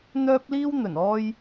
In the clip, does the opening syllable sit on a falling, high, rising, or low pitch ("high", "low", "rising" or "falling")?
high